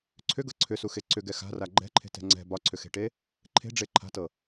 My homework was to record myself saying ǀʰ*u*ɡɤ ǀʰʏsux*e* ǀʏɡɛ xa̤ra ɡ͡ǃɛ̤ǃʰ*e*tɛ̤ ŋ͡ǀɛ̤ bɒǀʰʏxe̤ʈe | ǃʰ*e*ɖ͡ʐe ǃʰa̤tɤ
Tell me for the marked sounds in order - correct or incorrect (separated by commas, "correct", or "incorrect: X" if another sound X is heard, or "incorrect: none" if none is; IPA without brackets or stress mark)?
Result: incorrect: ʏ, correct, incorrect: e̤, incorrect: e̤